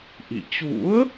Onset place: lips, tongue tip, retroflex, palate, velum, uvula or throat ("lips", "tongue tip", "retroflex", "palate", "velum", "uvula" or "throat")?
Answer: throat